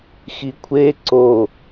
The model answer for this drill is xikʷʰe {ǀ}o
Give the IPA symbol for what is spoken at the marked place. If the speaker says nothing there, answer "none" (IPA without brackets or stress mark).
ǀ